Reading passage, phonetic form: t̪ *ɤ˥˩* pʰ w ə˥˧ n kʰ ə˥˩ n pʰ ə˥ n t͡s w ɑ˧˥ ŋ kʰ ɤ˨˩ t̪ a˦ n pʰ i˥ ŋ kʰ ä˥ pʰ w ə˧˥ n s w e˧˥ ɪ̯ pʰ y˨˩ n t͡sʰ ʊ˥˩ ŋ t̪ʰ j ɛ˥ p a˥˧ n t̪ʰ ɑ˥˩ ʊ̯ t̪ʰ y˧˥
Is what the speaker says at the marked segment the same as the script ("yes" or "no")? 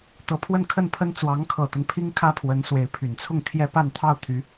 no